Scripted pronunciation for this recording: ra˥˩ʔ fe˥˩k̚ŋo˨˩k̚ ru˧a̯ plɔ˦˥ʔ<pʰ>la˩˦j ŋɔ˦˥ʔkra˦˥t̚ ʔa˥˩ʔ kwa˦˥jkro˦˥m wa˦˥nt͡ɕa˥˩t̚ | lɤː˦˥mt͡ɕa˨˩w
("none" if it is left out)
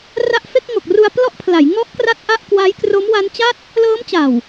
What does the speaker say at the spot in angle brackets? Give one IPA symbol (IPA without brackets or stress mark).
pʰ